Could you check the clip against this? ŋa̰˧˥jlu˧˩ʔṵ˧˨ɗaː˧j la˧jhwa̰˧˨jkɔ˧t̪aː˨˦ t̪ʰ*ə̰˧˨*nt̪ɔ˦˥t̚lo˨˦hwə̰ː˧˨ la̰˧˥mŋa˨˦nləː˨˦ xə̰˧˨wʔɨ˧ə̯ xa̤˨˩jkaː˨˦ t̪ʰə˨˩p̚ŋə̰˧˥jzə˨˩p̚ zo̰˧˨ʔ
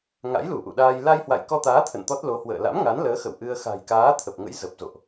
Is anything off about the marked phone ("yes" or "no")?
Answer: no